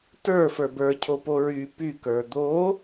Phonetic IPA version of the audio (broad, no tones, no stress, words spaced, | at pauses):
tə˞ fə˞bə˞ cʰopoɹy py kə˞d̪o